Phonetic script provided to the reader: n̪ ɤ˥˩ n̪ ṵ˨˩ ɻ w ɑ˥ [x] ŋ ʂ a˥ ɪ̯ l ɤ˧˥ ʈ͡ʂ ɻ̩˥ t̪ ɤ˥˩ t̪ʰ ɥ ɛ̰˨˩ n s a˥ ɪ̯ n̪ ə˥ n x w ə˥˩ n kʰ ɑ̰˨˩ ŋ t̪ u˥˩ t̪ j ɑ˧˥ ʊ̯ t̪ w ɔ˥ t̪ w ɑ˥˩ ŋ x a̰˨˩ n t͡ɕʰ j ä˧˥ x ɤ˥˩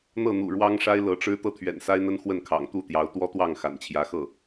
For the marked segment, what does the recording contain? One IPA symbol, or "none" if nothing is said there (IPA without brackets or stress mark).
none